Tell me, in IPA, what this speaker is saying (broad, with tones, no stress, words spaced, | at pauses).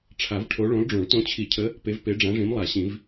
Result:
ʈ͡ʂʰa˨˩˦vʈʰo˨˦ ɭõ˨˦lɖ͡ʐõ˨˩˦ɭ tõ˨˦t͡ɕʰi˨˩˦cʰə˨˦ | pe˨˦vpe˨˦ɖ͡ʐã˨˦ʐĩ˨˦m lˠa˨˩˦ɕĩ˨˩˦v